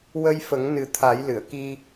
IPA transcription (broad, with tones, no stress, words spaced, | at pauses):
wə˧jfə˨˩˦ŋ nɨ˨˩˦t̪ʰa˨˩˦jlɨ˨˩˨ə̯ki˧